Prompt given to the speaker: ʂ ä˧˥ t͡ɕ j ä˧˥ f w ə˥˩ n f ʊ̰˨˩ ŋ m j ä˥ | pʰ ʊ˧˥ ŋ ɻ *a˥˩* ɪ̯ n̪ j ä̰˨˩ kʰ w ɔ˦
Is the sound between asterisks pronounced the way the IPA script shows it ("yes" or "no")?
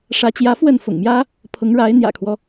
no